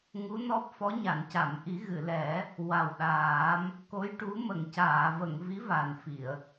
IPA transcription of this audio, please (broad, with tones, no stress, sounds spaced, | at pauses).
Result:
ŋ u˧˥ n ɔ˦˥ p̚ f ɔ˧˥ ɲ a˨˩˨ n c a˨˩˨ m ʔ i˨˩˦ ɣ ɨ˨˩˨ l ɛ˨˩˦ | w a˨˩ w ɗ aː˨˩˦ m | k o˧˥ j ʈ u˧˥ m ə˨˩˨ ŋ c aː˨˩˨ v ə˨˩˨ ŋ v i˧˥ v a˨˩ n f i˨˩˨ ə̯